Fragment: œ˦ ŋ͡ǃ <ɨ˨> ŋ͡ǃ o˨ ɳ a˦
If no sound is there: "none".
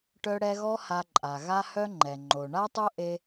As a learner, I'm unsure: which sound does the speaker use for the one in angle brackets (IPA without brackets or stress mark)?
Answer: ɛ˨